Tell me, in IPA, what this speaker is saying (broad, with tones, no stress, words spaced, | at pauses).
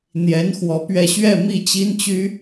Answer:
n̪jɛ˧˥n xwɔ˧˥pɥɛ˥˧ ɕɥɛ˥˧mi˥˩t͡ɕi˥nt͡ɕy˥